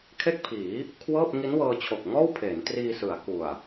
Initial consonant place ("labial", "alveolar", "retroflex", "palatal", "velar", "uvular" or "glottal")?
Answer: velar